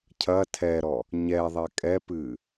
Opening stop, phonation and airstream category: aspirated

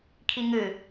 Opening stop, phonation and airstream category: aspirated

